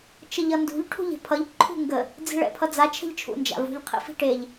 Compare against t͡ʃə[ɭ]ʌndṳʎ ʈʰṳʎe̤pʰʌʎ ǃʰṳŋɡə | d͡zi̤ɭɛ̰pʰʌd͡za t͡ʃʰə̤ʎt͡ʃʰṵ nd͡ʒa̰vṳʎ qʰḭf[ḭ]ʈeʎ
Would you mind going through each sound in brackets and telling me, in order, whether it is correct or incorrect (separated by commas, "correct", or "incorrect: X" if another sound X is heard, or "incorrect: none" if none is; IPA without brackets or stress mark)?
incorrect: ʎ, incorrect: i̤